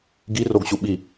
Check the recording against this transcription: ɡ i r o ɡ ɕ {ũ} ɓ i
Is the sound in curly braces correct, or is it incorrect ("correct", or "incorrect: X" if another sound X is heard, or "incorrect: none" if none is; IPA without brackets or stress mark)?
incorrect: u